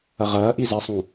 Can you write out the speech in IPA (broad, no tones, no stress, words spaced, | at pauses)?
ɐʁɐːʔi zɐsˤũ